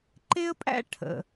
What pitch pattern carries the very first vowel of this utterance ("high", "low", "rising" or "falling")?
high